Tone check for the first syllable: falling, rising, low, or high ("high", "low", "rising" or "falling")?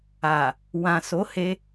low